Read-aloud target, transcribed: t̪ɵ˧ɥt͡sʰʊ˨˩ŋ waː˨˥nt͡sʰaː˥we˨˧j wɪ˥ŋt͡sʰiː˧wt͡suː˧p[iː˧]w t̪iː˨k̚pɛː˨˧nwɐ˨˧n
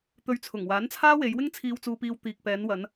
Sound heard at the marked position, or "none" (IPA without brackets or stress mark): iː˧